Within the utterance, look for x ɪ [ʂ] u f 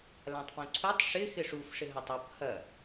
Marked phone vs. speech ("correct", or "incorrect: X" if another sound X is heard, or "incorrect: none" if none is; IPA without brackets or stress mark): correct